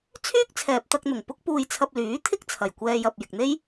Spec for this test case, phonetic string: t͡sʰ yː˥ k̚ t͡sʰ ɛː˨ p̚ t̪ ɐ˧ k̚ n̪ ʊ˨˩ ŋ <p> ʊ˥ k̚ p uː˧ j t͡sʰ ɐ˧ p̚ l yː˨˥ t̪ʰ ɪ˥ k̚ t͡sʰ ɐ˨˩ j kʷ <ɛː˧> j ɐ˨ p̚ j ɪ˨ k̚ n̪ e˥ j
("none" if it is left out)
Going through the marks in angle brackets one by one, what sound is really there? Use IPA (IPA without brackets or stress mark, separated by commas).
p, ɛː˧